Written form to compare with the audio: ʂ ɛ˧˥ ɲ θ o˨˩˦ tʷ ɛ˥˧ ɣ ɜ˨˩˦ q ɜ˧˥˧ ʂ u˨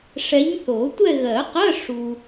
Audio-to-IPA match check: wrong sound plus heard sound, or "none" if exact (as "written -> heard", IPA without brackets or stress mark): none